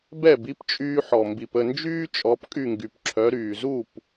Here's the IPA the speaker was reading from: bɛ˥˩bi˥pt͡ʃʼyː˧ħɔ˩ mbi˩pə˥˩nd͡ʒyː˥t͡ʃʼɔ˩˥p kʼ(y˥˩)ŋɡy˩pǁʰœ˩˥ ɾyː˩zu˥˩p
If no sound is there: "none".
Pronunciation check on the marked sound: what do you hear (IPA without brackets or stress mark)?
y˥˩